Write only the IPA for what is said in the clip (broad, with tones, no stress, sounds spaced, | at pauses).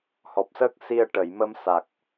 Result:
h ɔ˨˩ p̚ s əː˦˥ k̚ s i˧ ə̯ ʈ ə˨˩˨ j m ə˧ m s a˨˩ k̚